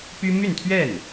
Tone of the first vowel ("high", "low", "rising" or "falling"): high